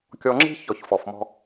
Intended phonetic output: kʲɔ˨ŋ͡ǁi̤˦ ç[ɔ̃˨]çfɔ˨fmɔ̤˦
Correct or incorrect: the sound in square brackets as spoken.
incorrect: ɔ˨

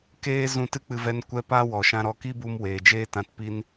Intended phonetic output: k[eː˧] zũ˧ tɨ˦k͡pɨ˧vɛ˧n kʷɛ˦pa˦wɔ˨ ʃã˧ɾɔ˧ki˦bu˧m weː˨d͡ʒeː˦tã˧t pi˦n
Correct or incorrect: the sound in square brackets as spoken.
incorrect: eː˦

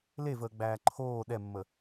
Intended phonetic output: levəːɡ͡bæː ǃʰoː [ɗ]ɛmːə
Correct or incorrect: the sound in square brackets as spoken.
correct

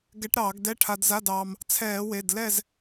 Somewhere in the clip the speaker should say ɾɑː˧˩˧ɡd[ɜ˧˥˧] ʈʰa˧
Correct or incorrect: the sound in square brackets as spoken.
incorrect: ɛ˧˥˧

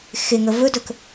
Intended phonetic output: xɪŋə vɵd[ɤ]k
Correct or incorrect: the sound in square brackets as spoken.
incorrect: ɵ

